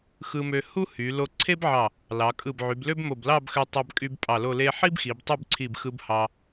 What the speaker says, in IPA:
xɯ˧mø˧ hu˥hy˩˧ lo˧ǀʰe˥bʕɑ˧˩ | lɑ˩˧kʼɯ˧˩bʕy˩˧blø˥b mo˧˩blɑ˥˧bxø˧tˤɑ˧b kʼy˧b pʼɑ˧˩lo˥˧le˥ ħi˥bxi˩˧b tˤy˥˧bǀʰi˧˩bxɯ˧b hɑ˧

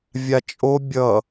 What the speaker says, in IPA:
vʲat͡ʃʼo bʲʌ

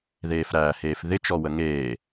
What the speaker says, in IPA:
ðeːfɾæːheːfðɪ t͡ʃɔwəŋeː

